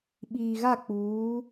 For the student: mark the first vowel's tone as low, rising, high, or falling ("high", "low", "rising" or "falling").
low